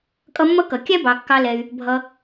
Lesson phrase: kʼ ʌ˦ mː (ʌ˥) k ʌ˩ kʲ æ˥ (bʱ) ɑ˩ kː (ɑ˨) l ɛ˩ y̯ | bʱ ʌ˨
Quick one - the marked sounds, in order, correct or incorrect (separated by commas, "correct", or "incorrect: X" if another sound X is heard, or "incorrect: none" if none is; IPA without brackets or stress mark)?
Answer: correct, incorrect: b, correct